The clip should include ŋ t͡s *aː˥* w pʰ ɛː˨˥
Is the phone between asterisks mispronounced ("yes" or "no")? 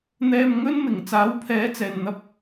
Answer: yes